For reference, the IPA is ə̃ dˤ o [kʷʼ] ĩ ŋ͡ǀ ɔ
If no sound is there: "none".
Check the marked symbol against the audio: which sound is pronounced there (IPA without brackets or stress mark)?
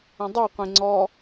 qʷ